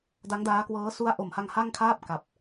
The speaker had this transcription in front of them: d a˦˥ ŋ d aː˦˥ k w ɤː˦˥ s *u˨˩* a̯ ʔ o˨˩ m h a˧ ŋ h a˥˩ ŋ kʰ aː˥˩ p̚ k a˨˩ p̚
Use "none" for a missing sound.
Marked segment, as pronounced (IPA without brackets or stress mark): u˦˥